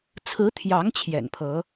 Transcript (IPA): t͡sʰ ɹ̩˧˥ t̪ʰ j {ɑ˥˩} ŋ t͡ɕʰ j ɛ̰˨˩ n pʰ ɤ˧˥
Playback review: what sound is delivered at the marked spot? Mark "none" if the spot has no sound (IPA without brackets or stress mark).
ɑ˧˥